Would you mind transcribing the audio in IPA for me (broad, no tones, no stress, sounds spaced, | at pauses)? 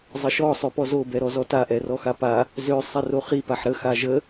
zˤ ə ʃ ɔ sˤ ø p ɔ z o b ɛ ɾ ɔ z ɔ t a ʔ ɛ r ɔ x a p a | z ø sˤ ɛ r o χ i p a ħ ɾ ə x a ʒ ə